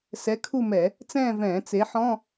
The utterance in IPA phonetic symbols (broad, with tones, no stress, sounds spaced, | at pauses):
s ɛ˩˥ kʰ u˦˨ m ɛ˧˩˧ | t͡s ɛ̃ː˦˨ v ɛ̃ː˧˩˧ t͡s e˩˥ ħ ɔ̃˧˥˧